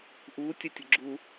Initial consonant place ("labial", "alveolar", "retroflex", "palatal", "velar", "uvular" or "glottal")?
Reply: glottal